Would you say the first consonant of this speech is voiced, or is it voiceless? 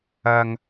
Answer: voiced